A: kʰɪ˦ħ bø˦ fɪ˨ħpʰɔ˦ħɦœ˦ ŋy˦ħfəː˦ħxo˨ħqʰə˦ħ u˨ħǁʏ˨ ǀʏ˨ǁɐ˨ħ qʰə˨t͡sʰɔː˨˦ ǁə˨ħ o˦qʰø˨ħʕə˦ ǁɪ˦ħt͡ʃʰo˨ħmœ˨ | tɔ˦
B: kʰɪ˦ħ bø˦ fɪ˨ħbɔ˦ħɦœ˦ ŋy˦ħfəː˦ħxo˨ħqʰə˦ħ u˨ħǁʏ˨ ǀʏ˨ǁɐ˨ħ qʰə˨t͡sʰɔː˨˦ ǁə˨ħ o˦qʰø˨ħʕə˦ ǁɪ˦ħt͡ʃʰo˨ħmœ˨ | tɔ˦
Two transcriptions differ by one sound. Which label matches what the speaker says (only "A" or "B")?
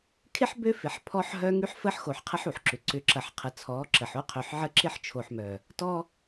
A